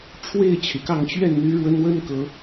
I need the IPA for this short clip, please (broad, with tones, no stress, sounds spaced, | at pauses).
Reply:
ʈ͡ʂʰ w e˥˨ ɪ̯ t͡ɕʰ y˩ k ɑ˥˨ ŋ t͡ɕ ɥ ɛ˥˨ n n̪ y˦ ɻ w ə˦ n w ə˦ n k ɤ˨˦